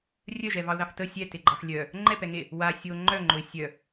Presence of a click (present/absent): present